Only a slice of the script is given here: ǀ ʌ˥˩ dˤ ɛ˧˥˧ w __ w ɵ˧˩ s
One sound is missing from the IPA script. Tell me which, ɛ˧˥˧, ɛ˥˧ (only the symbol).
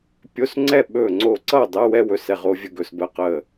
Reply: ɛ˥˧